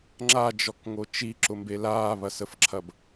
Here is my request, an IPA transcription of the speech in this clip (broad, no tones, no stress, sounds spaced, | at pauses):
ŋ͡ǁ a d͡ʒ ɔ k ŋ o t͡ʃ i ǁ ʊ m b e l aː β ɐ s ə f ǁʰ ɐ b